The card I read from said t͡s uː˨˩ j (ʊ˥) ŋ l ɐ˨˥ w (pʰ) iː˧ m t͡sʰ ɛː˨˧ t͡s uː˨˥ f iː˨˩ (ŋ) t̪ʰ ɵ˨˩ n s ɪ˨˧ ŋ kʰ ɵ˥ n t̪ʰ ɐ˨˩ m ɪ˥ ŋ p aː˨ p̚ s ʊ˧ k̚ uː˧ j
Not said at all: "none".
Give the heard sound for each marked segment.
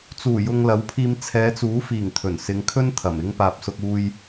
ʊ˨, pʰ, ŋ

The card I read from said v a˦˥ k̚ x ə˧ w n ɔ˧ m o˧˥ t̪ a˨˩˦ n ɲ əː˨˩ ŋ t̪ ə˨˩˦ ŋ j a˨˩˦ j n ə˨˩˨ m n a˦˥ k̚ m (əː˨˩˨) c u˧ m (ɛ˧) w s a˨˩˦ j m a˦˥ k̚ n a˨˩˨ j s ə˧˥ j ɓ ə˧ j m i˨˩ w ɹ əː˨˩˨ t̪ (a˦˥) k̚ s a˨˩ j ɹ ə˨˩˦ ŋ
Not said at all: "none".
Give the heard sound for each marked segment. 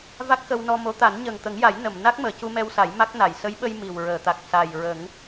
əː˨˩˨, ɛ˧, a˨˩

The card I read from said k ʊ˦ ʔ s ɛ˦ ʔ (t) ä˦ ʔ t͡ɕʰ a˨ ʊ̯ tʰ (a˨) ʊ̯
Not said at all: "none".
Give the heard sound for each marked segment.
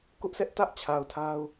t, a˦

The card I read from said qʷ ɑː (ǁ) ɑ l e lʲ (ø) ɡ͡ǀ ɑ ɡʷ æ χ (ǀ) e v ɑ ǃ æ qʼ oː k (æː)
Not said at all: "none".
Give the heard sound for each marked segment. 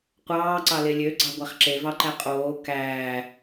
ǀ, ø, ǁ, æː

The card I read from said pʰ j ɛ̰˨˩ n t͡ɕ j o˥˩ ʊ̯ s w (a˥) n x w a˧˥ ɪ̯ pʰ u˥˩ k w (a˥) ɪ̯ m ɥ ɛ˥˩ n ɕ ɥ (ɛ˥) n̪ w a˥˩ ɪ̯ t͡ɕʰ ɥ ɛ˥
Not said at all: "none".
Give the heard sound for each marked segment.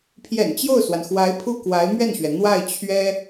a˩, a˧˥, ɛ˩

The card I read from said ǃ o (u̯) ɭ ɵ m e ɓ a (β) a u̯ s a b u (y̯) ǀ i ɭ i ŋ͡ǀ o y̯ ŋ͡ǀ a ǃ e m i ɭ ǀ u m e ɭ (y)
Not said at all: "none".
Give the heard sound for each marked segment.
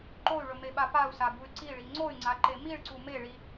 y̯, p, y̯, i

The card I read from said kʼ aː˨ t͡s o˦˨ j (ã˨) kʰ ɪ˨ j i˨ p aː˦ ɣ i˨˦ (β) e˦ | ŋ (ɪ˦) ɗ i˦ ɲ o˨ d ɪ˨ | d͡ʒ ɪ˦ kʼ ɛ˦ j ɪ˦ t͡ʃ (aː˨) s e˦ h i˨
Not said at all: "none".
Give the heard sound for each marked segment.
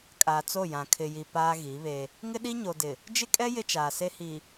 ã˨, β, ɪ˦, aː˨

